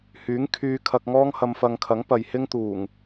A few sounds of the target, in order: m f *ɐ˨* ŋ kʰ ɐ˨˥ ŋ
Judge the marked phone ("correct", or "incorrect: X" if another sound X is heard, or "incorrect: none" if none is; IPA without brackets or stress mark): incorrect: ɐ˧